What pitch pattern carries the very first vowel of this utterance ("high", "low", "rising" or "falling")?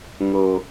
low